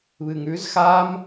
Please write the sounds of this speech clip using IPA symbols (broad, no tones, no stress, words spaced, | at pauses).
βɨŋʉz xam